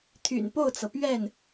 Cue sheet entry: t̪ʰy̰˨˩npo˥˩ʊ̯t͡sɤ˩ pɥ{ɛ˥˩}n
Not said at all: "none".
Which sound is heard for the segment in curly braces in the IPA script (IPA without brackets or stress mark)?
ɛ˥˩